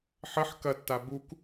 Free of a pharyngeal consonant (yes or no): no